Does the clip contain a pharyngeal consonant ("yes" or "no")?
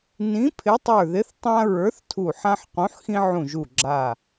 yes